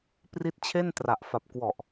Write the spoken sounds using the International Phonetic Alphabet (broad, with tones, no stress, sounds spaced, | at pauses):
p r i˦˥ t̚ t͡ɕʰ e˥˩ n t r a˨˩ ʔ f a˨˩ p̚ k w ɔ˨˩ ʔ